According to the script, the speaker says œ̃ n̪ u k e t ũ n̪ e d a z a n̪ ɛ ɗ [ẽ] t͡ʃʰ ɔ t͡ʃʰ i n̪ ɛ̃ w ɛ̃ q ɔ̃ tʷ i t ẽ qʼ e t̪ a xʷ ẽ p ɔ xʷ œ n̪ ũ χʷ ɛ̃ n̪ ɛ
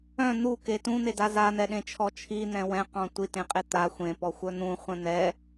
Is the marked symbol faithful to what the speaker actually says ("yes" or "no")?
yes